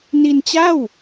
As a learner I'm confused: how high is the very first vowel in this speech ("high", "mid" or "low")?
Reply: high